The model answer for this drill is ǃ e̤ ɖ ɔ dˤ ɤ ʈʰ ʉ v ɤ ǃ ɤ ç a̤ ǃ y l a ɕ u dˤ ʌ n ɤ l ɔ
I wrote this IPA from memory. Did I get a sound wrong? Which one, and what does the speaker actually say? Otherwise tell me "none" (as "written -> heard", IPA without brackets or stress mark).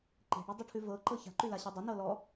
none